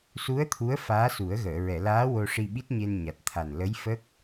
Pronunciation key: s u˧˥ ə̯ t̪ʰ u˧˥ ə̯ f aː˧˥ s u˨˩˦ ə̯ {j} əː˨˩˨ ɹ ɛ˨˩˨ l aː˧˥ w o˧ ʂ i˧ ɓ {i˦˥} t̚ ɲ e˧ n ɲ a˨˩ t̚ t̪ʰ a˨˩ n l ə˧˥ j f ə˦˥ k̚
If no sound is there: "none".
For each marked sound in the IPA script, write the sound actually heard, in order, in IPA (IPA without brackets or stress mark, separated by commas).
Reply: ɣ, i˦˥